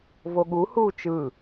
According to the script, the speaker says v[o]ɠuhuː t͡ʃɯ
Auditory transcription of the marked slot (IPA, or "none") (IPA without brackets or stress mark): o